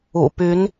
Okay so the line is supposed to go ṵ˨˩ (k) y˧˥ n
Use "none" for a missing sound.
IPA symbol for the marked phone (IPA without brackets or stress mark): p